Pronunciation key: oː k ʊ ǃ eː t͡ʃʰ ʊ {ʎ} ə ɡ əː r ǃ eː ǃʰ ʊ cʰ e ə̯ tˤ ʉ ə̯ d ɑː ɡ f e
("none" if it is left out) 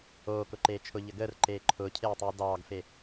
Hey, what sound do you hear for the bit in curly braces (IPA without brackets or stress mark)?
ʎ